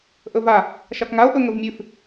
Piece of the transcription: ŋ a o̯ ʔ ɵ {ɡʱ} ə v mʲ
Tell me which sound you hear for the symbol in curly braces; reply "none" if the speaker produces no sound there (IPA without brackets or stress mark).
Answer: ŋ